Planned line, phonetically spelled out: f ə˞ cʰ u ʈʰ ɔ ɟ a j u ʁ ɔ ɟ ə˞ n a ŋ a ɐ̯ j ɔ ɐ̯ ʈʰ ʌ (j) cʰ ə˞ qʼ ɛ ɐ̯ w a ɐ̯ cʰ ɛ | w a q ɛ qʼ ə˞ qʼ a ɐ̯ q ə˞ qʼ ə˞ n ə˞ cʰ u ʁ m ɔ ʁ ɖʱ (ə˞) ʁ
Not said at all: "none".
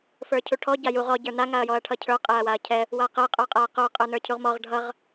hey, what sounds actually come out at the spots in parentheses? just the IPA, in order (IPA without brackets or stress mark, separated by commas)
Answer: none, ʌ